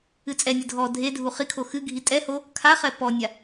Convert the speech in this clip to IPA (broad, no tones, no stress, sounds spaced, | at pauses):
ɨ t͡sʼ ɛ nʲ ɨ dʱ ɔ dʱ e dʱ u χ i kʰ o x ɨ ɡʱ i tʼ ɛ h o | kʰ a χ ɛ p ɔ nʲ a